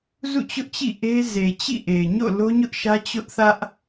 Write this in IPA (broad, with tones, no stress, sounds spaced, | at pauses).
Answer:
z ṵ˦˨ t͡ɕ ʊ˦ ʔ t͡ɕ ḭ˦˨ ʔ e˦ z e˨ t͡ɕ ḭ˦˨ ʔ e˨ ɪ̯ ɲ o̰˦˨ l o˦ ɲ ʊ˦ ʔ ʃ ä˦ t͡ɕ ʊ˦ ʔ θ ä˦ ʔ